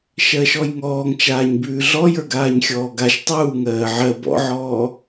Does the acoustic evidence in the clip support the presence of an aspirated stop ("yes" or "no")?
no